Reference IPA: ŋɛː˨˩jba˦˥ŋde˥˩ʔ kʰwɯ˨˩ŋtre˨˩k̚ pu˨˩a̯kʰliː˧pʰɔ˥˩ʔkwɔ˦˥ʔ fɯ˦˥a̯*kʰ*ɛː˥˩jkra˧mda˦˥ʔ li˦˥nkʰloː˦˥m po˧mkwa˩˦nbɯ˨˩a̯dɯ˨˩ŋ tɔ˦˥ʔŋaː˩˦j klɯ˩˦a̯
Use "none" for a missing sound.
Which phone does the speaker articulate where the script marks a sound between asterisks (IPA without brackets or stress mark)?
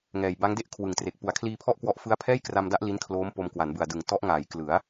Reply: pʰ